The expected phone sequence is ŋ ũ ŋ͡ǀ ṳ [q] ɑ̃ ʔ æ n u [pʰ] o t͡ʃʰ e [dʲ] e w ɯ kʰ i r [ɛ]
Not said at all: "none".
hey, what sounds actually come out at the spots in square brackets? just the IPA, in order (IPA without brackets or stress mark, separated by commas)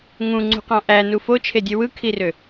q, f, dʲ, ø